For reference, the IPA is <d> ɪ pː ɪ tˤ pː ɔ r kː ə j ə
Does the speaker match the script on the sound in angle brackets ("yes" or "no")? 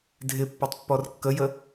no